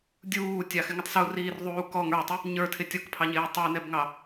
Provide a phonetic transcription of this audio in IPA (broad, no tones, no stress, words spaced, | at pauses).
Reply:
dʲuːtʲɑxɪŋʊtˤ suriːrðˤuː kɔŋ ə˞tˤɪ | ɲə˞tʰɪ tʲɔkpʰɑɲɪː tˤə˞nɛbŋɑ